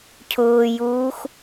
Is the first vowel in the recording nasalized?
no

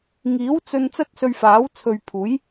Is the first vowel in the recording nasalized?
no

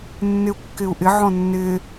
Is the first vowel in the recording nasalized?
no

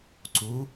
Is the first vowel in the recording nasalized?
no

